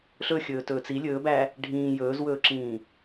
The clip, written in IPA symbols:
ɬ ɵ xʲ ɵː t ɵː t͡s i lʲ ɵː b æ | ɖʱ ĩː j ɵː z w ɵː ǁ ĩː

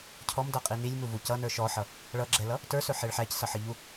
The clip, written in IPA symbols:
cʰ ɔ m d ʌ qʼ i n i lʲ m u v u c ʌ n ə˞ ʃ ɔ ħ ʌ | ɭ ʌ ɡ͡ǁ ɛ l ʌ | t ə˞ s ɵ ħ e ɭ ħ æ c s ʌ ħ ə ʎ u

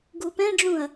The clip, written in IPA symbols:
ɡ u p ɛ̃ ɖ͡ʐ ũ ɐ̯

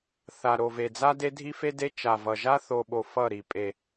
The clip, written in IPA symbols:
θ a˨ ɾ o˨ v e˨ d͡z a˦ d e˦ dʱ i˦ f e˦ d e˦ t͡ʃ a˨ v ʌ˨ ʒ a˦ θ o˨ ɓ o˨ f ʌ˦˨ ɾ i˨ pʼ e˨

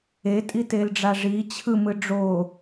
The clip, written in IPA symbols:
e tʼ i t e l ɖ͡ʐ a ʐ i t͡ɕʰ ɯ m ɯ ɖ͡ʐ o

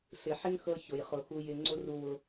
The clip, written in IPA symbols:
ɬ ɪ˨ ħ ɪ˦ ŋ x ɤ˧ ç ʊ˨ j χ ʊ˨ x u˧ j ɪ˧ ŋ͡ǀ ʊ˦ r u˧ w ʊ˧

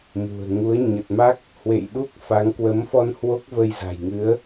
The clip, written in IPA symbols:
m ṳ˨˩ ə̯ ŋ u˨˦ ə̯ ɲ ə˨˩ t̚ m a˦˥ k̚ | h w ḛ˧˨ j ɗ u˦˥ k̚ f a˨˦ ŋ k w ə˨˦ m f ɔ˧ n h w o˦˥ k̚ v ə˧ j z a̤˨˩ j ŋ ɨ˨˦ ə̯

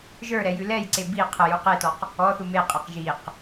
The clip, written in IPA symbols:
ʒ ə˞ ɾ ɛ j ʉ l ɛ j ǀ e b i qʰ ə j u q e t ɔ q | ɔ θ u m e qʼ ɛ q ʒ i q

